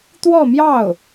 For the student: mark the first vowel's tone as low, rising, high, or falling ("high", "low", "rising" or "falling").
falling